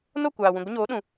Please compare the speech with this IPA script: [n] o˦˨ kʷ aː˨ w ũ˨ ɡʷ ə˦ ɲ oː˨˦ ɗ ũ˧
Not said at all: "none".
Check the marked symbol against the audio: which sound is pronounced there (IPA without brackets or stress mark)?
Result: n